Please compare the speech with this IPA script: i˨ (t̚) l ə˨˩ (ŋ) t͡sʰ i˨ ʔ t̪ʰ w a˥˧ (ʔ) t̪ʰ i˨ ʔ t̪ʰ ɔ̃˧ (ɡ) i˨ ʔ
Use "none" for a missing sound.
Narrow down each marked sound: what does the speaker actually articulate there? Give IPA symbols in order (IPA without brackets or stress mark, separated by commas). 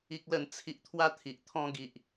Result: k̚, n, none, ɡ